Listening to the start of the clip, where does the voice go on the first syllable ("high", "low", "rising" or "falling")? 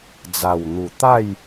low